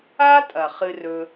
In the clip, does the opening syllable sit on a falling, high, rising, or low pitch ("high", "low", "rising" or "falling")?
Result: high